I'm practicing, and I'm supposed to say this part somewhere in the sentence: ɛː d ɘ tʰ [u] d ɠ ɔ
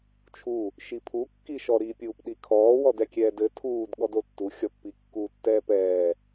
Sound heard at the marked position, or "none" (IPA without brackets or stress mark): uː